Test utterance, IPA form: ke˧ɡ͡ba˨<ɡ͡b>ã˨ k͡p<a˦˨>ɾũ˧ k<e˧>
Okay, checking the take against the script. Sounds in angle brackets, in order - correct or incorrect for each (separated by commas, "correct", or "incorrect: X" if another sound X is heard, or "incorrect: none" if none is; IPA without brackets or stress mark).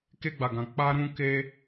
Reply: incorrect: ɡ, incorrect: a˧, correct